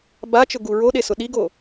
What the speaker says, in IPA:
bat͡ʃʊɡu ɹoɗesʊ ɗiɡo

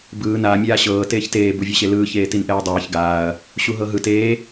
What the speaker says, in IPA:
bɯː na mʲaːɕɤː teːçteː buvʲɛɕelɯː çeːtinʔɛːdˤɛːç ɡaːɐ̯ | ɕuɦɤɦɯt eː

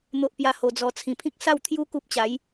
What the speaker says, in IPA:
n̪o˦ʔpja˦ho˧d͡zɔ˧ t͡sʰĩ˨˩pʰĩ˦k̚ sa˥˧wt̪ʰju˦ ku˦p̚t͡ɕa˨˦j

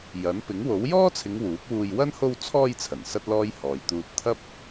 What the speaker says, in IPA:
jɐ˨˥n pɪ˨˥ŋwo˨˥w jɔː˥t͡sʰɪ˨˧ŋ wuː˨˥k̚wuː˧j wɐ˥n ho˧wt͡sʰɔː˧jt͡sʰɐ˨˩n sɐ˥t̚lɔː˥j hɔː˨jt̪uː˧t̚ t̪ʰɐ˥p̚

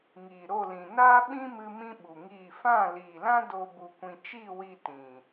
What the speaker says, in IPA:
ŋiː˨ɾo˦˨lĩ˨ naː˦ɓĩ˦mɨ˧ mĩ˦ɓu˨ŋiː˦˨ fã˦˨liː˨lã˦do˧ bu˧kʷĩ˧ t͡ʃi˦˨wi˧ tĩ˨

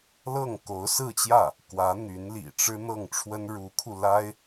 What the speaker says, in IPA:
lɤ˥˩ŋko˧˥ʊ̯ sɹ̩˥˧t͡ɕjä˥˩ | kwä˧˥n̪y˧˥nlḭ˨˩ʈ͡ʂɻ̩˥ n̪ɤ˥˩ŋʈ͡ʂʰwə˥n ɻu˧˥kʰu˧la˥ɪ̯

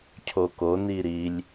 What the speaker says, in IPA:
cʰoko niɾilʲ

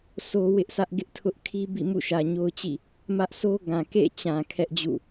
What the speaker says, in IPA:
so˦wɪ˦ʔsä˦ʔ ɡɪ˦ʔtʰʊ˦ʔkʰi˦ bḭ˦˨mṵ˦˨ʃä˨ ɲo˦ʊ̯t͡ɕḭ˦˨ | mä˦ʔso˦ ɡã˨ kḛ˦˨t͡ɕã˨ kʰɛ˦ʔd͡ʑṵ˦˨

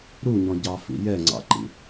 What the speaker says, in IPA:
ɾuɲɔ̃ ɟɑfḭ jɛŋ͡ǀɑ̰ǃḭ

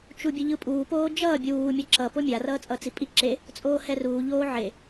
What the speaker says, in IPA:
t͡ʃubʲɯʎɯpʼuː poːd͡ʒʌː bʲuː mʲʌǁʌ pomʲa rʌːt͡sʼʌːt͡sipʼi ǁe | t͡sʼoːhɛruː ʎoːʕe

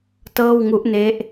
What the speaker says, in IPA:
tɤː˥˩wŋu˦˥ʔne˦˥ʔ

